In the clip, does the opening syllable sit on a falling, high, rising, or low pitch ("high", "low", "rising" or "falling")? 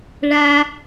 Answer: high